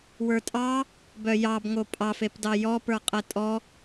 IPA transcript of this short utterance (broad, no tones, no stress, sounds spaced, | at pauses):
w ə˞ tʼ ɑ | b œ j ɑ b ŋ o pʼ ɑ f e p d ɑ j ɔ p ə˞ qʼ ɛ tʼ ɔ